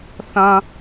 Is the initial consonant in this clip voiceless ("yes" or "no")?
yes